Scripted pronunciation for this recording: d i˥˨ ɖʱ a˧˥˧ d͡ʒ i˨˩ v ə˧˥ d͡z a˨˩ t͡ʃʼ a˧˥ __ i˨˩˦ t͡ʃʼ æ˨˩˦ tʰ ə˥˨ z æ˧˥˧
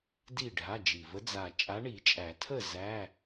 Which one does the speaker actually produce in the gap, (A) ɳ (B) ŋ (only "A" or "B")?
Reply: A